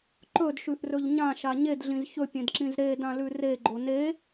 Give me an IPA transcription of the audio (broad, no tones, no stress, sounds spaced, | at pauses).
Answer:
ǃ ɵ d ʃ ʉ ʔ r ɵ ʎ ɲ ã ʃ a ɲ e d ɮ ĩ z ç ɵ pʲ ẽ d ǁ ĩ z ɾ e d ã l ʉ r e ɡ͡ǃ o n e